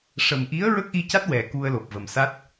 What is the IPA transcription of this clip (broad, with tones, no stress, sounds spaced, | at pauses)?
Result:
ʂ ə˨˩ m ʔ i˧˥ ə̯ ɹ ə˦˥ k̚ ʔ i˧ c a˦˥ t̚ w ɛ˨˩ k u˧ ə̯ l o˨˩ p̚ v ə˨˩ m s a˦˥ t̚